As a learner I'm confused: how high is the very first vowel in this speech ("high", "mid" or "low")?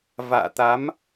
low